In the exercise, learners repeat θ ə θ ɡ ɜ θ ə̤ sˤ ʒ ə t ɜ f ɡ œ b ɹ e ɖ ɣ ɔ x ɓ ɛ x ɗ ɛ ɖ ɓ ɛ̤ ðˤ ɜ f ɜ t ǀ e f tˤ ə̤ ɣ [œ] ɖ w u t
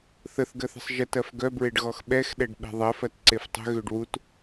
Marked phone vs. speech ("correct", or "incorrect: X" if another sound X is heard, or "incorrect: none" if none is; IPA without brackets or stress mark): incorrect: ø